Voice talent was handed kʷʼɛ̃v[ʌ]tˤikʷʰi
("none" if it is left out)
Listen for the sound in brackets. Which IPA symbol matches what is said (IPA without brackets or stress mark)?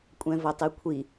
ʌ